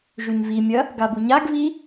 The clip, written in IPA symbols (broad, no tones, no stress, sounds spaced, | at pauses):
ʒ ʉ ɲ v i mʲ ɐ | ɡ a b u ɲ a ɡ v i